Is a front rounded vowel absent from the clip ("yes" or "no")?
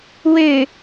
no